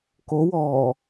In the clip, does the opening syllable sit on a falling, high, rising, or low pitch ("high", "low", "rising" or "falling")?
rising